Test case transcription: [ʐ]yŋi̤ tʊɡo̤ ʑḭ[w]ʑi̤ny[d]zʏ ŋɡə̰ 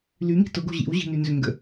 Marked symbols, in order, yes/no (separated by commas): no, yes, no